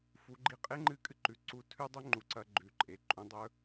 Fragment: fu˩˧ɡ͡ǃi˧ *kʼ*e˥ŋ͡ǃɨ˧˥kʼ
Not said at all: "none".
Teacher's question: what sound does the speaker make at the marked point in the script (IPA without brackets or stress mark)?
qʼ